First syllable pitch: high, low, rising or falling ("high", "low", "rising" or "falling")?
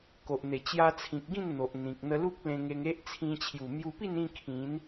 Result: low